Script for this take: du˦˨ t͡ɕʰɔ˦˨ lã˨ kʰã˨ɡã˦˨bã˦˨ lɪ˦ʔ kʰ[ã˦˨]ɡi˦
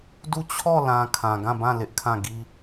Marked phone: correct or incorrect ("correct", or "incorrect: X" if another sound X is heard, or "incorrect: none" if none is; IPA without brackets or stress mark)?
correct